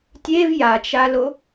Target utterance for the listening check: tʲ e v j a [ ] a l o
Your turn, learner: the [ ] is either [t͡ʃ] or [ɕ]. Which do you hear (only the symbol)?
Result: t͡ʃ